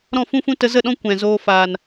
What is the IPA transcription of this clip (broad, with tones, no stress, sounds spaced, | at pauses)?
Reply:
ɾ ɔ̃˦˨ f ũ˦ f ũ˦ t ə˧ z ə˦˨ ɗ ɔ̃˦ kʷ ɛ̃˨ z oː˦ f aː˨ n